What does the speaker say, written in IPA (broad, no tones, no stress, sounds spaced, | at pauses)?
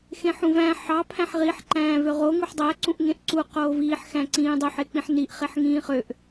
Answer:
x ẽ ħ ũ v æ̃ ħ ɑ pʰ æ̃ ħ ʁ i ħ ǃ æ̃ː v ø ʁ o ŋ u ħ dˤ æ ǀ ũ ʔ ŋ ẽ ʔ ǀ u q oː v iː ħ x æ̃ ǀ ĩː dˤ ø ħ e k͡p ĩ ħ n i ʔ χ e ħ ŋ ĩː χ ø ʔ